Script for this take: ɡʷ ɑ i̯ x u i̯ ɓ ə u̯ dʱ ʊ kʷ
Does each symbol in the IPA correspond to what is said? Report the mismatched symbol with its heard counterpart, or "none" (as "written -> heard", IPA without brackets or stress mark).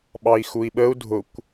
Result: ɡʷ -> ɓ